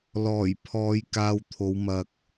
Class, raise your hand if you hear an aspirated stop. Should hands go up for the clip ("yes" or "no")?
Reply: yes